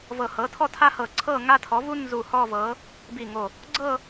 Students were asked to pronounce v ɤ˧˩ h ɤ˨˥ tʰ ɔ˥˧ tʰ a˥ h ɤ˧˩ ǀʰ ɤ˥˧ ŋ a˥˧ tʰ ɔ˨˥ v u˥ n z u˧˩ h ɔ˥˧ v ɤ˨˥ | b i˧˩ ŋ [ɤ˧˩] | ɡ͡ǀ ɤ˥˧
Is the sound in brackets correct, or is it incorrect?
incorrect